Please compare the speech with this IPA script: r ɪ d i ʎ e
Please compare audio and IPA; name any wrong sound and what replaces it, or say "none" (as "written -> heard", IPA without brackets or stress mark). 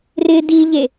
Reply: none